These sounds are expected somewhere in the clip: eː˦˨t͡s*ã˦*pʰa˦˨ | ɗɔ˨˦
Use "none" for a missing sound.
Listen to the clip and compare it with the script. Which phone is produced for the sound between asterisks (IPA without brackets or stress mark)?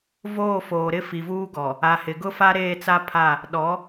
a˦